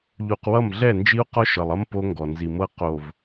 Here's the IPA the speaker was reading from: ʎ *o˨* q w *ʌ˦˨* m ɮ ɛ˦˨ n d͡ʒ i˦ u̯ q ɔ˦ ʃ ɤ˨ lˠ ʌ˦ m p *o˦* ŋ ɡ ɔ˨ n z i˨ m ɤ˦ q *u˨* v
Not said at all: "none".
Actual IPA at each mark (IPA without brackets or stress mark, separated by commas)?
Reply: u˨, ʌ˦˨, o˦, o˨